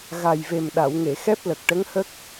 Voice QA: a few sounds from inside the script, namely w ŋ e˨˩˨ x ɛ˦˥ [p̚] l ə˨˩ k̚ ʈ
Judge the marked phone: correct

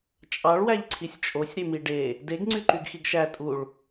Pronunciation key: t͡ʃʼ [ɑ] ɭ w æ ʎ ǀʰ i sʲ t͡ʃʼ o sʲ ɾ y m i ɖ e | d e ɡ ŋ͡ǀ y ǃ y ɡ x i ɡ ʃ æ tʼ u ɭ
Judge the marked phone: correct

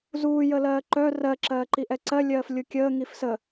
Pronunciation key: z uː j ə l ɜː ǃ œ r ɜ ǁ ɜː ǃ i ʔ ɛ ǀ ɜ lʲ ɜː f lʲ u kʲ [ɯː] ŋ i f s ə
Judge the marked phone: incorrect: əː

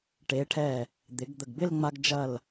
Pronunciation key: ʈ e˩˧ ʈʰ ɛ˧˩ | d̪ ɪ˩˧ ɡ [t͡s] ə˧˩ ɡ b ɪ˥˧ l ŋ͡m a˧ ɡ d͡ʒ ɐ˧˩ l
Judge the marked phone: incorrect: d̪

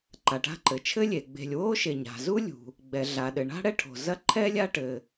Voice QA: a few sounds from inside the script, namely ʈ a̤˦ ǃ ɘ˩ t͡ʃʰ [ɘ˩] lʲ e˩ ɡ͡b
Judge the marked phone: incorrect: ɘ˥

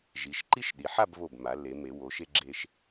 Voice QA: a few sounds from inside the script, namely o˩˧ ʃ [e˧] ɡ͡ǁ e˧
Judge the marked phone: correct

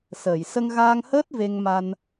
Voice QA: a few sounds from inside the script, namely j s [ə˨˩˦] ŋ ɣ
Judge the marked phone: incorrect: ə˧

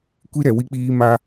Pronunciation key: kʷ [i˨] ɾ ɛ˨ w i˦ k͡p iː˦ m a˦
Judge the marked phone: incorrect: i˦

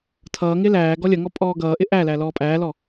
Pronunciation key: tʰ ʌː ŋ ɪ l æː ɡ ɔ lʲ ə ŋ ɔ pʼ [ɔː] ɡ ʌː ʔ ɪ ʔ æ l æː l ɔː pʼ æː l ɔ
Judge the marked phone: correct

